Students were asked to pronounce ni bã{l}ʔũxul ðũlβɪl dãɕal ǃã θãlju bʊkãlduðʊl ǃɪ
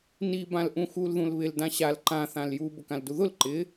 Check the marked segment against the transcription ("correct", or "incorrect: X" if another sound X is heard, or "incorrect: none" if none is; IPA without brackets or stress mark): correct